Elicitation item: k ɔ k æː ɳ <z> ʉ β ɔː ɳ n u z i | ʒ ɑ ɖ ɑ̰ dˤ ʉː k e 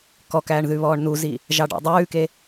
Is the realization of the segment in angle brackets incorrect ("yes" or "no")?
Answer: yes